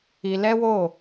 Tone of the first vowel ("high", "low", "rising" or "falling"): low